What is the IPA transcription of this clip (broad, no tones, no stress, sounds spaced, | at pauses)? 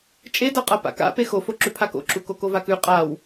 t͡ʃʼ e d a qʼ a p a̰ k a̰ p e x o f o ǁ ʉ pʰ a k o̰ ǁ u k o k o v a k ʉ qʼ a w